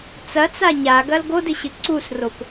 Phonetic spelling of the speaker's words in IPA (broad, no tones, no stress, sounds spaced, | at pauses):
t͡s ɐ t͡s a ɲ a ɡ ɐ l ɡ o d ɨ ɕ ɨ ǀ u s r o p